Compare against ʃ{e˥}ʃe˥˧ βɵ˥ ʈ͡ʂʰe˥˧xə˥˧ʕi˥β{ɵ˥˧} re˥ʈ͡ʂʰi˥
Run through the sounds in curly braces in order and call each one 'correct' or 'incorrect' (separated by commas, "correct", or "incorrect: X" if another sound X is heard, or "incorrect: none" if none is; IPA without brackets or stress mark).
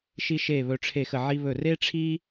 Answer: incorrect: i˥, correct